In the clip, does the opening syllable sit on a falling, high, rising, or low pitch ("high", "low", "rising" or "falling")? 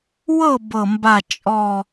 falling